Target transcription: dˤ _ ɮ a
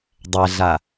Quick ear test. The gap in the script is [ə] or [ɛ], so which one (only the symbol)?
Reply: ɛ